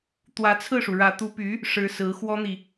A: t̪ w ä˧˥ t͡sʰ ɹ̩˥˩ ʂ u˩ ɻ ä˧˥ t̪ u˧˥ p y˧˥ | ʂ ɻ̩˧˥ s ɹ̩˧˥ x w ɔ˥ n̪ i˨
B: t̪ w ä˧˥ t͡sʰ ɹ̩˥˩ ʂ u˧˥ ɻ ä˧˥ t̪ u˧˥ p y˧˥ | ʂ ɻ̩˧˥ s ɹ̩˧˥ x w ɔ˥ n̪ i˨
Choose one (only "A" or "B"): A